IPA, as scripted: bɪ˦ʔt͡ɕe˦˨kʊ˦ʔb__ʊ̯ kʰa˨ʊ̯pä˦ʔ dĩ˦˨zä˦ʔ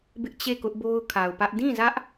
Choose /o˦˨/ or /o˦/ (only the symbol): o˦